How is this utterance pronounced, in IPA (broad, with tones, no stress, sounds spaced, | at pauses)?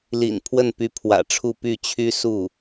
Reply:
l ḭ˨˩ n pʰ w ə˥˩ n p y˧˥ pʰ w ä̰˨˩ ʈ͡ʂʰ u˥˧ p y˥˩ t͡ɕʰ y˥ s u˥˩